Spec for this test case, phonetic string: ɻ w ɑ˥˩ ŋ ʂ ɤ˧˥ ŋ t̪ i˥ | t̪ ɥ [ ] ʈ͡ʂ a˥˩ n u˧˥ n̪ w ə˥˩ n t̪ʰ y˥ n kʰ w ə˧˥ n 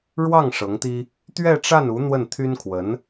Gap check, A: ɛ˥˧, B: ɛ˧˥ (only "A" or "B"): A